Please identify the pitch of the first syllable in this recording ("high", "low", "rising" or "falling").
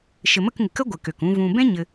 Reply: low